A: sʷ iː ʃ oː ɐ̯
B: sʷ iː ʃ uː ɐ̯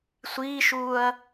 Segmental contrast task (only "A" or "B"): B